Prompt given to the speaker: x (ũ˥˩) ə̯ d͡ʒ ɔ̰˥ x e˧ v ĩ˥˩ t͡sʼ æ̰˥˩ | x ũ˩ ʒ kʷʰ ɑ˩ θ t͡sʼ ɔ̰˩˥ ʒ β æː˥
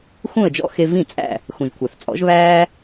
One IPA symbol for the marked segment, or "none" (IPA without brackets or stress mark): ũ˥˩